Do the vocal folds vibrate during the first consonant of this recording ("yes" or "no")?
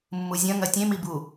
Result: yes